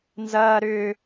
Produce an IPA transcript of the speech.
n z ɐː ɾ ʏː

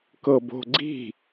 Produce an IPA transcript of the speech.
k ɤ b o̤ ɡ͡ǀ i̤

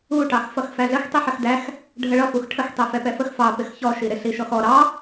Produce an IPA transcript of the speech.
u ʈ ɑ x f ʌ x f æ ɮ ə x tˤ i ħ ə x d æ x | ɖʱ ə ɭ ʌ f u x ʈʰ ə x tˤ ɛ f ɛ p ɛ f ə x f ɑ p ɪ x ç ɔ ʃ i ɾ ɪ ɬ i ʃ ɔ x ɔ ɾ ɑ

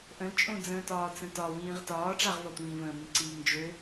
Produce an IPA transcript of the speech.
ʔ ə̃ l t͡ʃʼ õ d͡z ə̃ː t ɒː t͡s ə̃ t ɒ w ĩː ʁ t ɒː ʈ͡ʂ a ʁ v ɒ tʷ ĩː v ə̃ː m ĩ ǀ iː ŋ d͡ʒ ø

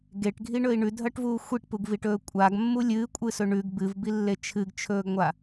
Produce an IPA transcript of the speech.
ɡ e ʈ ɡʱ i ɳ ɵ i̯ ɳ ʉ dʱ ɐ ʈ v uː xʷ i ʈ p u ɡ v i ʈ ɵː kʷʼ a ɡ mː u lʲ ɨː kʷʼ ɨ s ɵ ɳ ʉ ɡ b ɨ v b i lː e t͡ʃʰ ɨ ɡ t͡ʃʰ ɵː ɡ ŋʷ a

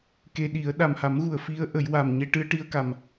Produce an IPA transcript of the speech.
k e˧ ɗ i˨˩˦ ə̯ ɗ a˨˩ m h a˨˩˦ m ɣ u˨˩˨ ə̯ f i˧˥ ə̯ ʔ ə˨˩˦ j w a˨˩ m ɲ e˧ ʈ ɨ˧ ə̯ ʈ i˧ ə̯ k a˨˩ m

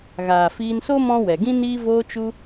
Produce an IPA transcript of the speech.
ɣ aː˨ f iː˧ n s o˦ m ɔ̃˦ w ɛ˨ ɡ ĩ˧ n iː˧ v oː˧ t͡ʃ u˧

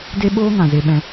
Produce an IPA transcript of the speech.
d e˦ ɓ oː˦ ŋ ã˨ z e˧ ɓ ɛ̃˧

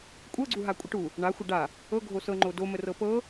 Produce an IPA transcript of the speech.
kʷʼ ɤ ɡ͡ǀ u ɦ a kʷʼ ə ʈ u | ɳ a xʷ ɐ ɖ a | ɤ ɡʱ o s ɤ ŋ͡ǃ o d o m ə r ɤ p ɤ

